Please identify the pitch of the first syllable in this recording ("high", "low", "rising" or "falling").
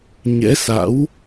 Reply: rising